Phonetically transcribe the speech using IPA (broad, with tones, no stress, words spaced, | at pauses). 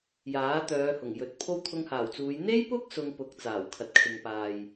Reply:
jaː˨˥t̪œː˨˧ hʊ˨˩ŋjɵ˨t̚pʰo˥w t̪ʰʊ˧ŋhaː˨˩wt͡suː˨˧j n̪e˥jpʊ˥k̚ sʊ˧ŋpʊ˨˥k̚ t͡saː˨˩wkʰɐ˨t̚kʰɪ˨ŋpaː˨j